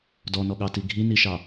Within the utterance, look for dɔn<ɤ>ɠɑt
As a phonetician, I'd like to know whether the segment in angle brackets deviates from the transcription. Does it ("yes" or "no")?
yes